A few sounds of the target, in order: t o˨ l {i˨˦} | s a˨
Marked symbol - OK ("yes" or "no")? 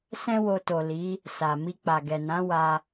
yes